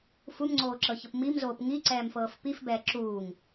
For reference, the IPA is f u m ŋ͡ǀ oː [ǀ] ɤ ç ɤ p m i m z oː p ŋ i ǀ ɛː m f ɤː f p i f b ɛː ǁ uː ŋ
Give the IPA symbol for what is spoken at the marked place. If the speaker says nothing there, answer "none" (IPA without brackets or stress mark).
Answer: ǁ